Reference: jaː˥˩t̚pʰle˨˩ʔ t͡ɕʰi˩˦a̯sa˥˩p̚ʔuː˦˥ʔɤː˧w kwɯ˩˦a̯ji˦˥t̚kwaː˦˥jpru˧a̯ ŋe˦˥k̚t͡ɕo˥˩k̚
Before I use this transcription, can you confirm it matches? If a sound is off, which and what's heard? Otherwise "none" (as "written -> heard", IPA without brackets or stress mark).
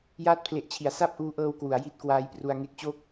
ɯ˩˦ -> u˩˦